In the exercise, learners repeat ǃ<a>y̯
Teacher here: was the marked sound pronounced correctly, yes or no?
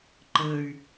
no